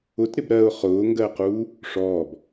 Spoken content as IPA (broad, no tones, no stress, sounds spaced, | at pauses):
ʊ t ɾ ɪ b ɾ ɜ ʊ̯ χ ʊː ŋ ɡ ɜ q uː | ʂ ɔː b